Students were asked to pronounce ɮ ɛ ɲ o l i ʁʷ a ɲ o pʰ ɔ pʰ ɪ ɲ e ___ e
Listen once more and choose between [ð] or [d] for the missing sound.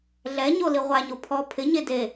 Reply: d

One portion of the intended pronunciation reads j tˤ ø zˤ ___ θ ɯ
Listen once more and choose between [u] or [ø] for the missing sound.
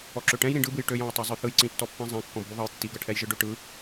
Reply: ø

